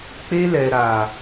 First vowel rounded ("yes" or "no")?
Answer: no